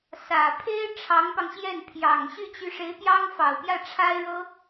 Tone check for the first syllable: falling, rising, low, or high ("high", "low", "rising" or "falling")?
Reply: low